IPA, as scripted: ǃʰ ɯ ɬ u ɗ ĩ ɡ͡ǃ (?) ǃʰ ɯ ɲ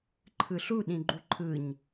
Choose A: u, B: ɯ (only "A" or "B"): A